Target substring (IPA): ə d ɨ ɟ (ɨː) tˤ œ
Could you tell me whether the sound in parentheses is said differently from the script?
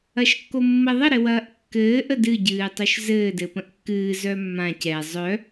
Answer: no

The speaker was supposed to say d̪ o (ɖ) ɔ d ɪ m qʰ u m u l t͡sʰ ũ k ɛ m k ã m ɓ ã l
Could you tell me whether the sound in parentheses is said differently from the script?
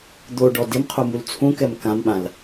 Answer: no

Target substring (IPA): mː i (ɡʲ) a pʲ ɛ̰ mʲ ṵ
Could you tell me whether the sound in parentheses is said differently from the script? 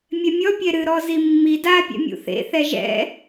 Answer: yes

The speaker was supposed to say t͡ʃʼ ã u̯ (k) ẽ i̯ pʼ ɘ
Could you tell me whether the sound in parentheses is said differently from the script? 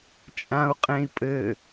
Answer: yes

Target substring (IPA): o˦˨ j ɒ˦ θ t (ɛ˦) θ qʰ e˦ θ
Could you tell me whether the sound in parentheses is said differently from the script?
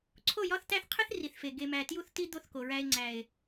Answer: yes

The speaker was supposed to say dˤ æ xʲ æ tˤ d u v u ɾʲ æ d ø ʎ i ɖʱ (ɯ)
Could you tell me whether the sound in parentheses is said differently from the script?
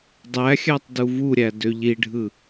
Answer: no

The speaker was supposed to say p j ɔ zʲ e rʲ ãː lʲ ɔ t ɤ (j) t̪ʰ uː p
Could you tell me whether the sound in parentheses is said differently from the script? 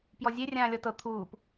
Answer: yes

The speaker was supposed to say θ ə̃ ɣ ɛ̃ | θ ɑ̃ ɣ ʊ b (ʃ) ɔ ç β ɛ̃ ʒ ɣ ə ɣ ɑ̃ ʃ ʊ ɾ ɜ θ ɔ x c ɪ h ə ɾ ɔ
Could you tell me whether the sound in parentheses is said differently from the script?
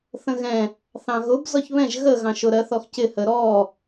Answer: yes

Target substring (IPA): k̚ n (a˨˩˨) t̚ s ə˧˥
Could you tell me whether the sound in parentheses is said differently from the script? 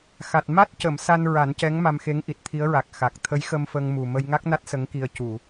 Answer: yes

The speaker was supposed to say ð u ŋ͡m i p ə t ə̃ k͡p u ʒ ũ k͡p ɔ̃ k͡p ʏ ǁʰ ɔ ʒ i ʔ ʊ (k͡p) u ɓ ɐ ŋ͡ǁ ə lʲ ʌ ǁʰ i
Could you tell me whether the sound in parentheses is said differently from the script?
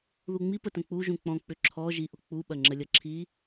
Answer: no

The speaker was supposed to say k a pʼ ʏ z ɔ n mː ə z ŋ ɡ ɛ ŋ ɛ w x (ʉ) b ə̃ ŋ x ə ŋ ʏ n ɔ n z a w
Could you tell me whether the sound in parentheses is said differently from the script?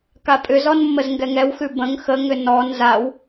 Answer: no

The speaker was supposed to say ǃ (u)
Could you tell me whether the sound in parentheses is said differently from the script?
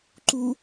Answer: no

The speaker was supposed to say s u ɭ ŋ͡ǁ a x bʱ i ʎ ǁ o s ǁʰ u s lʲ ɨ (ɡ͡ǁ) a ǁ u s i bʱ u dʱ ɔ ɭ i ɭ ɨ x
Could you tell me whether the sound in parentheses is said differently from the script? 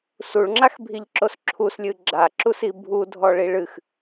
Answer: no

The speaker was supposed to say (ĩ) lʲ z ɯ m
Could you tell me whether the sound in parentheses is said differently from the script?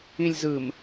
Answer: no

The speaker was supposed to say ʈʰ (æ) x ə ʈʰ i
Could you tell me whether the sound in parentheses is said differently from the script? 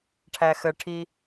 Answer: no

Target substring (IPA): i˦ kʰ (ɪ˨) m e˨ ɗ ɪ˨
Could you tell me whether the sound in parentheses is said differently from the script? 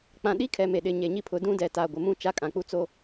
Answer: yes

